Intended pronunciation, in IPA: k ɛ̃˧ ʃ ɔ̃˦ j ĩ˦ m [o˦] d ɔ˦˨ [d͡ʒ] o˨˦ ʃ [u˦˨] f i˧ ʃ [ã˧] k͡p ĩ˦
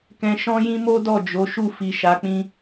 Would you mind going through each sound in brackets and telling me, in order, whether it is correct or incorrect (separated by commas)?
correct, correct, correct, incorrect